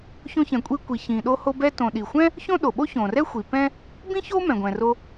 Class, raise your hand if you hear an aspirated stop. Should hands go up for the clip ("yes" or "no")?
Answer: no